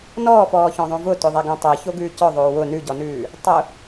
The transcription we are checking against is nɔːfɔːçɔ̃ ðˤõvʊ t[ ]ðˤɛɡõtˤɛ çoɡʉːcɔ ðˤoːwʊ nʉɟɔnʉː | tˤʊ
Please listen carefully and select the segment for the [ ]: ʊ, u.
ʊ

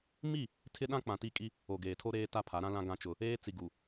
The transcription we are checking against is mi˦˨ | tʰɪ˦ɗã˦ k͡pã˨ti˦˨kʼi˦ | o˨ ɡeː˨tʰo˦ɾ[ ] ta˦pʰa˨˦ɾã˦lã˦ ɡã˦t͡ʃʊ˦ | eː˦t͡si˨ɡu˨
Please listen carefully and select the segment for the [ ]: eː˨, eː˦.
eː˦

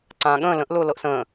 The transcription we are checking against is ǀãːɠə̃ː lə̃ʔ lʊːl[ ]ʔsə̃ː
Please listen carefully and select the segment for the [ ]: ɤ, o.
ɤ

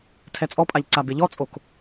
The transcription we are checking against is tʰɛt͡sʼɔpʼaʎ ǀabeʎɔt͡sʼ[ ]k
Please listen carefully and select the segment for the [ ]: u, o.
o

